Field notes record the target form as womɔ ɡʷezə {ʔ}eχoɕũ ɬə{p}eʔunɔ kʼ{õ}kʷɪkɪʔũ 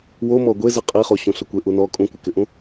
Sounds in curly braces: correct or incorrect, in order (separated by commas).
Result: incorrect, incorrect, incorrect